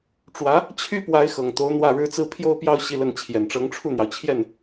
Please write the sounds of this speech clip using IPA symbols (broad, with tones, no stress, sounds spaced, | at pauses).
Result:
ʈ͡ʂ w ä˧˥ | t͡ɕʰ y˥ p w a˧˥ ɪ̯ x ɤ˨˩ ŋ t̪ o˧˥ ʊ̯ n̪ w ä˥˩ ɻ ɻ̩˥ t͡s ɹ̩˥ pʰ j o˥ ʊ̯ p j ɑ˥˧ ʊ̯ ɕ i˥˧ l ə˥˩ n t͡ɕʰ j ɛ˨˩ n ʈ͡ʂ ɤ˧˥ ŋ ʈ͡ʂʰ u˥˩ n̪ j ɑ˩ ʊ̯ t͡ɕʰ j ɛ˥˩ n